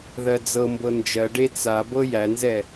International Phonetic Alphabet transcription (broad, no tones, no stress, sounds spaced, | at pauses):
ð ɜ d͡z ɤ m b ɤ n d͡ʒ ɜ ɖ e t͡s a b ɤ j æ n z ɛ